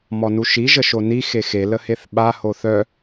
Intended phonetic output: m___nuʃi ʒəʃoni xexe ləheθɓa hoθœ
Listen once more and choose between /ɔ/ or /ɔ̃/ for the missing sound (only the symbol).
ɔ